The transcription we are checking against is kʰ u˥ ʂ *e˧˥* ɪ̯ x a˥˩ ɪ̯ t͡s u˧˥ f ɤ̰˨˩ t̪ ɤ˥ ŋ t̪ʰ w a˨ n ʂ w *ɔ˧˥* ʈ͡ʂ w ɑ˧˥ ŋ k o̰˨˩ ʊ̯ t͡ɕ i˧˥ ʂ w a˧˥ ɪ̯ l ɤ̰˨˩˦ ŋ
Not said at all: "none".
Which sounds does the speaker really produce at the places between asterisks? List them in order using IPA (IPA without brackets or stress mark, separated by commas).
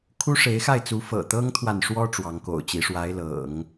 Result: e˧˥, ɔ˥